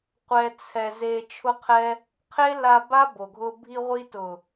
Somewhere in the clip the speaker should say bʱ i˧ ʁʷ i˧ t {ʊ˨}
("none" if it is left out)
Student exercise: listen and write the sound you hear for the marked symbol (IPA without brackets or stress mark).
ʊ˨